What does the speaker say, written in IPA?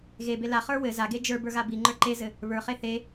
ɣ e b e l a χ ə˞ w ɘ z a ɡ e d͡ʒ ə˞ b ə˞ ɣ a b i ŋ͡ǃ ə˞ ǃ e z ɘ | β ə˞ χ e θ e

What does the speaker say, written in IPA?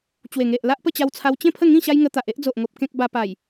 t͡ɕ w e˨˩ ŋ e˨ ʔ l a˦ ʔ p ə˥˧ t͡ɕ a˧ w t͡sʰ a˧ w t͡ɕ ẽ˥˧ pʰ ə˥˧ ŋ ĩ˥˧ ɕ a˦ j ŋ ə˧ t̪ a˨ ʔ e˦ ʔ d͡z o˨ ʔ ŋ o˨ p̚ k ẽ˦ k̚ b a˧ p a˨˩ j

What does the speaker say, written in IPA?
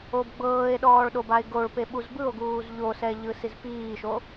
o b ɡ͡b ɤː e̯ ɗ ɔː ɭ ɗ o b a e̯ ɡ o ɭ p e ɓ u z b ɯ o̯ ɡ uː z ʎ o s ɛ ʎ ɯ s i z p iː ʃ o

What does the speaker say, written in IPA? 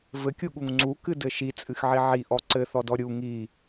v ɘ kʲ u ɠ u ŋ ŋ͡ǀ u k ɨ d ɘ ʃ i t͡sʼ ɨ x ʕ i ʕ i ʔ ɔ ǀ ɘ θ ɔ d ɔ ɾʲ u ŋ i

